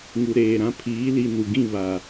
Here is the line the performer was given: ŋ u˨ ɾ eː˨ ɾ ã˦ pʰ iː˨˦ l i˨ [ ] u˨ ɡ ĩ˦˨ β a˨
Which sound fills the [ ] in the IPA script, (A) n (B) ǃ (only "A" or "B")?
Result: A